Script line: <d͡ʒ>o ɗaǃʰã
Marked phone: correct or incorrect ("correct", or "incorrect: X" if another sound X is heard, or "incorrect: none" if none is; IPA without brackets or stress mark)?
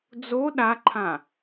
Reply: incorrect: d͡z